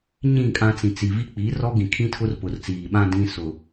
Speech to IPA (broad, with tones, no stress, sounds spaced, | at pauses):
ɲ ĩ˦˨ kʼ ã˦ t͡s ĩ˨ t͡s i˨ v i˦ k͡p iː˨˦ r ɔ˦ ɡ ĩ˨ kʰ ĩ˦ tʰ ʊ˦ r p ʊ˨ r t͡s iː˨ ɓ ã˦ d ĩ˦ s ʊ˨